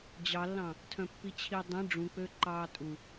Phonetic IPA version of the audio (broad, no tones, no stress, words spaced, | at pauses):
d͡ʑɑlːɑ̃ | tʰœ̃pːit͡ɕʰidˤĩ ɖ͡ʐũk͡pø ǃɑːtʼu